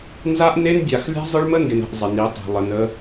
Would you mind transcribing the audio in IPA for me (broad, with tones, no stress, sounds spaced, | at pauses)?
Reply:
n z a˦ ʔ n e˦ n dʲ a˨ x lʲ a̤˦ zˤ ə˦ ɭ m ə˦ n d ɪ˨ n ə̤˨ ʔ zˤ ɪ˨ n i˨˦ tˤ e̤˨ lˠ ə˨ n ə˦